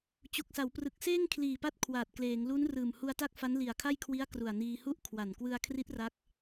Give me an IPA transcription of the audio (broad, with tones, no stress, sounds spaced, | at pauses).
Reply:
t͡ɕ u˨˩ k̚ s a˩˦ w p r ɯ˨˩ k̚ s eː˥˩ ŋ kʰ l iː˨˩ p a˦˥ t̚ kʰ w aː˨˩ t̚ k l eː˩˦ ŋ l u˦˥ n r ɯː˨˩ m h u˧ a̯ t a˥˩ k̚ f a˦˥ n l i˨˩ a̯ kʰ a˥˩ j kʰ w i˦˥ a̯ k r u˨˩ a̯ n iː˧ h u˥˩ ʔ kʰ w a˨˩ n k w ɯ˧ a̯ kʰ r i˦˥ t̚ r a˦˥ k̚